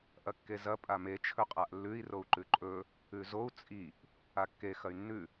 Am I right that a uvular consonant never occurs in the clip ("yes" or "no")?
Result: no